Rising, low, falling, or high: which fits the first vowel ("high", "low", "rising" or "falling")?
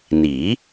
rising